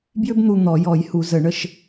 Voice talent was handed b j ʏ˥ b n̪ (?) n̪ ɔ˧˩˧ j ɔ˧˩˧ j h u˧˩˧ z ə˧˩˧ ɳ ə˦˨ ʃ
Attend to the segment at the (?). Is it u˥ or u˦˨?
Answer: u˦˨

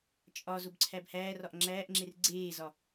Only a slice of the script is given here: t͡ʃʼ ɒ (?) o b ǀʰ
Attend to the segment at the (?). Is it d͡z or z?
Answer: z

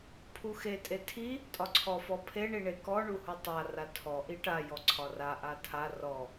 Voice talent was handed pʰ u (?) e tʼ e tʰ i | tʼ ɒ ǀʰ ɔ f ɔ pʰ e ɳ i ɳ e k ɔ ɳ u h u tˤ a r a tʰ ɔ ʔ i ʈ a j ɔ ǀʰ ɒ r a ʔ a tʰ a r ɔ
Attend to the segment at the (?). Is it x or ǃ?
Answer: x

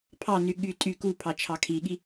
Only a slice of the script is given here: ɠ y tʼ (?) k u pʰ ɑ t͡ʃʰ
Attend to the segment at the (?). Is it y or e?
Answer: y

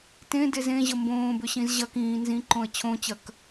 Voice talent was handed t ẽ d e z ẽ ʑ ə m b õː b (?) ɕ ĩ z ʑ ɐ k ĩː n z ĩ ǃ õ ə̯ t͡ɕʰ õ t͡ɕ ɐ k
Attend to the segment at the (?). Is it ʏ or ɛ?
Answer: ʏ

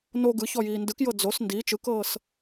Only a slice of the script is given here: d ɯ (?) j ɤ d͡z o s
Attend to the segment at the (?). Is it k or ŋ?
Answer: k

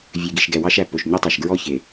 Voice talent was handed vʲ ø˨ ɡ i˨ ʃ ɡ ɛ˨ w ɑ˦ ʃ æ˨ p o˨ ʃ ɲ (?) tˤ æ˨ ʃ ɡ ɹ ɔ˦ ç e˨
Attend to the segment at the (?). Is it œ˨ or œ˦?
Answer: œ˦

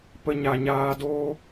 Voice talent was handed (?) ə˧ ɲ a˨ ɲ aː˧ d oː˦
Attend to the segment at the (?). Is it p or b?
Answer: p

